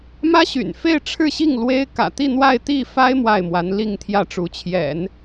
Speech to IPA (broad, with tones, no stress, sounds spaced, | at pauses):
m ä˥ ɕ y̰˨˩ n f e˥˧ ɪ̯ ʈ͡ʂʰ ɻ̩˥˧ ɕ i˥˩ ŋ l w e˥ ɪ̯ k ä̰˨˩ t̪ i˥˧ n̪ w a˥˧ ɪ̯ t̪ i˥˩ f a˥ ɪ̯ m w a˥˩ ɪ̯ m w a˧˥ n l i˥˧ ŋ t̪ʰ j ä˥˩ ʈ͡ʂ u˧˥ t͡ɕʰ j ɛ̰˨˩˦ n